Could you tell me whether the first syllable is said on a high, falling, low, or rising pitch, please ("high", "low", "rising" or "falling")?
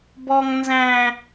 high